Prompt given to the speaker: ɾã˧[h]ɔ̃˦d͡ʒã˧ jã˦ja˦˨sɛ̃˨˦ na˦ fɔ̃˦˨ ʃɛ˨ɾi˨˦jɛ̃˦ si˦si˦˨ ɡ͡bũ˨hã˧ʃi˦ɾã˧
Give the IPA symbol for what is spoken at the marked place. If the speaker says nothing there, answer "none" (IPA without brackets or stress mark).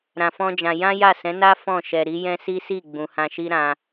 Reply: f